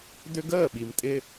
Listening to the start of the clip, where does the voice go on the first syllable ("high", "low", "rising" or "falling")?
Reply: high